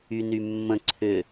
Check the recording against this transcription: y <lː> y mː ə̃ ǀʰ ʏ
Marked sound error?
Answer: yes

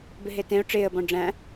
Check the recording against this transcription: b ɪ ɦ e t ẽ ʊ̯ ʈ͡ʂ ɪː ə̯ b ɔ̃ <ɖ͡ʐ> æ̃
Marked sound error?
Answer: no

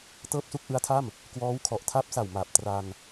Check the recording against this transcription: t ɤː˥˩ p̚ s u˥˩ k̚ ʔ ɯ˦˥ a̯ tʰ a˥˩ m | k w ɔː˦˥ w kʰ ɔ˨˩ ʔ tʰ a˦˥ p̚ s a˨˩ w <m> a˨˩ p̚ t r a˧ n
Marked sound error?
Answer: no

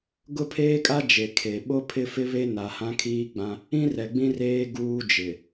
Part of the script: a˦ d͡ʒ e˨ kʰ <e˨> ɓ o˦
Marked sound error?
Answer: no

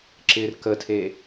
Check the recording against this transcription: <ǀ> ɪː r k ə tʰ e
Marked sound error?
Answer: yes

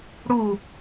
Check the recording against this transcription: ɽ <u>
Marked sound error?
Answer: no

